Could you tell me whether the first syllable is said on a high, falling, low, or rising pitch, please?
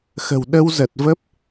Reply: low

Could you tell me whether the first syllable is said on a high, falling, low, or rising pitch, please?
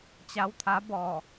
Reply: rising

